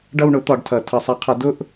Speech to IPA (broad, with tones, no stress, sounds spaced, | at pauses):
ɖ ʌ˥˧ w ɳ ʊ˨˥ t̪ ɒ˨˥ ɖ tʰ ʌ˨˩˦ tʰ ʌ˨˩˦ sˤ a˨˥ qʰ ʌ˨˥ d ʊ˥˧ ʔ